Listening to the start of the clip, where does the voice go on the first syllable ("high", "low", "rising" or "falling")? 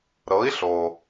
rising